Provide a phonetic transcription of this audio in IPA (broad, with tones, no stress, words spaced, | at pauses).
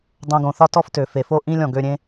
dˤõ˧ɡõ˨ θɒ˦tɔ˦f tø˨ fe˨fo˦ʔĩ˦lʲɔ̃˨ ɡø˧ɾʲẽ˦